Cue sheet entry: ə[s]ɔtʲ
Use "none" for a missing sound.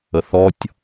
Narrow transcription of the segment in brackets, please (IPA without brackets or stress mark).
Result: θ